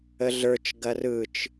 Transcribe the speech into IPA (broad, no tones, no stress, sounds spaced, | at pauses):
ə ɮ ə˞ t͡ʃ ɡ ɐ r ɯ t͡ʃ